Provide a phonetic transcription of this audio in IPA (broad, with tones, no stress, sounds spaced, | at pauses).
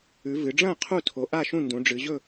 ʉ˩˧ v ɨ˩˧ ɖ͡ʐ ɐ̃ː˥˨ qʰ u˥˨ tʰ o˩˧ ʔ a˥˨ ʃ ũ˥˨ n d ũ˩˧ ɖ͡ʐ ɨ˩˧ ʑ ɵ˥˨